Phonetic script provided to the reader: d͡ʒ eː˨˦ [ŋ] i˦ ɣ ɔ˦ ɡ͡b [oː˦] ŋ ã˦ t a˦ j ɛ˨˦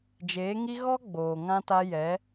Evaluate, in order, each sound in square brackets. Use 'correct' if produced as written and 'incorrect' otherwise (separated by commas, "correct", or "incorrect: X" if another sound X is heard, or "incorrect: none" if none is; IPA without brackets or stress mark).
correct, incorrect: oː˨